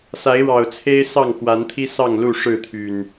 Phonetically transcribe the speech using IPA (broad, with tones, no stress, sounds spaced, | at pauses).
s a˨˦ ɪ̯ ɻ ɑ˨˩ ʊ̯ t͡sʰ e˦ ɪ̯ s ɑ˥˨ ŋ x w a˨˦ n t̪ʰ i˦ s ɑ˥˨ ŋ l u˥˨ ʂ ɻ̩˥˨ t̪ʰ y˨˩ n